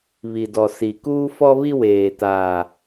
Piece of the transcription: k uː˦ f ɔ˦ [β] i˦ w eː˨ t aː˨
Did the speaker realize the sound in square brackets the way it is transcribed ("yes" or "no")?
yes